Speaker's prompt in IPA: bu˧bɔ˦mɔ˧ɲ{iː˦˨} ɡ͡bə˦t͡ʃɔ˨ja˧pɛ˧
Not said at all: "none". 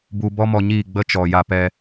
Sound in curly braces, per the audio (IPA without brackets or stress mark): iː˦˨